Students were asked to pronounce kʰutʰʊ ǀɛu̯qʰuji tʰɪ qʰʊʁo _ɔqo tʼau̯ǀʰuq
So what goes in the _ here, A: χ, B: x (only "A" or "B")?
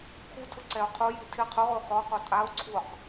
A